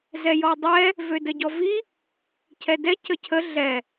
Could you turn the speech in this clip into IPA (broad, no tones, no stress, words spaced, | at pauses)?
zɛjɔdˤɛ | vødəɟɔvi | cʰɛdɛ cəcʰə ɮɛ